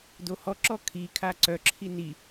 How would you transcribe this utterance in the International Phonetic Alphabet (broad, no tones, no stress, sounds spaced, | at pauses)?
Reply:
d o h ɔ ǁ ɔ kʰ i kʰ a ǀ œ ǁʰ i n i